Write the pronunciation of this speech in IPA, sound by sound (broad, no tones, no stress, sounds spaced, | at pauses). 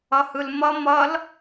ʌ h ɯ l m ʌ m ʌ l